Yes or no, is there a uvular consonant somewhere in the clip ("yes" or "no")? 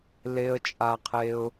yes